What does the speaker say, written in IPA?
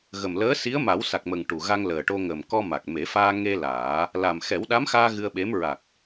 ɣə˨˩mləː˧˥ si˧˥ə̯ma˨˩˦wsa˨˩k̚mə˨˩ŋ ʈu˨˩ɣa˧ŋləː˨˩ʈo˧ ŋə˨˩m kɔ˧ma˨˩k̚me˨˩˦faː˧ ŋe˧ laː˨˩˦ | la˨˩mxɛ˨˩˦wɗa˧˥mxaː˧ ɣɨ˧ə̯ɓe˧˥m ɹa˨˩k̚

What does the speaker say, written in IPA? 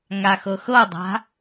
ŋaxɤxɤdˤa̤

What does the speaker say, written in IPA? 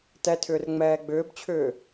tɛtʰʏːr ŋ͡mɛːɡ͡bʏːbt͡ɕʰʏː

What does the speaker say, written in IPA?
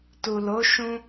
tu˨lo˨˦ ʃũ˧

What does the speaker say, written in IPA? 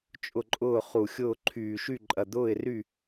t͡ʃʼʊ˥˩ǃʼʊː˥˩ χu˨˩xʲʊː˥˩ ǃʰyː˨˩ʃy˥˩ǃʼɐ˨˩ d̪ʊː˥˩ɪ̯ry˥˩

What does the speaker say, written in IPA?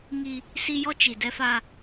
ŋi˦ | si˦jɔ˦t͡ʃi˨dɛ˦ fa˦

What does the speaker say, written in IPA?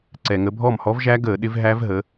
ǀɛ˨˩ŋə˨˦ bʱɔ˥˩mhɔ˦˥vʒæ˦˥ ɡəː˧˩˧ɗɪ˨˦v ɦæ˦˥vɦə˨˦

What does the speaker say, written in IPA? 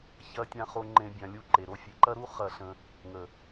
çɐ˧tʲã˧ χo˧ ŋ͡ǃẽ˦bʲã˧lʲu˦ǃe˨ ɾo˧fʲe˨ǃɐ˦ɾu˦ χɐ˦ɬə̃˧ | ŋə˨

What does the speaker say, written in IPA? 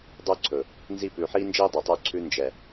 dˤɵː˦ǀʰɵ˨ | nzi˦˨ pʉː˨ħiː˦nd͡ʒiː˦ dˤɛ˨tˤɵː˦ǀʰʉː˦ nd͡ʒɛ˨

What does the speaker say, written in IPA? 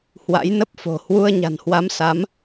hwa̰˧˥jnə˦˥p̚fo̤˨˩ hwu˧ə̯ɲa̤˨˩nhwa˨˦msa˨˦m

